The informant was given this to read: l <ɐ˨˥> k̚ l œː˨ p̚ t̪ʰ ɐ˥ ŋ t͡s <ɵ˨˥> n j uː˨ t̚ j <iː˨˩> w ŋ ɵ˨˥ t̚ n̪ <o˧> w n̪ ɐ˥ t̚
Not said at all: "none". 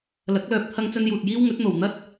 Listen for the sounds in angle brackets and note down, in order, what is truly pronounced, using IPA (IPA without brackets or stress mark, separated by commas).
ɐ˨˥, ɵ˥, iː˥, o˨